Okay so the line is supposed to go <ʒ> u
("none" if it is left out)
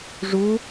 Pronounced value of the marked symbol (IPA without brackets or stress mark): ʐ